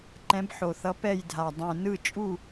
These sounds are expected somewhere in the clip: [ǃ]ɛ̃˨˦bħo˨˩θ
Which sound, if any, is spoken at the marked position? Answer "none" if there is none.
ǃ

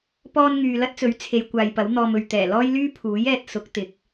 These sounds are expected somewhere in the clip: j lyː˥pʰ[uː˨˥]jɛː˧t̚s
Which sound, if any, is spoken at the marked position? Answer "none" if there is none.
uː˨˥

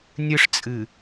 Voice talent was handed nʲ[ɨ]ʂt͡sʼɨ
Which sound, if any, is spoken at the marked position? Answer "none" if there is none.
ɨ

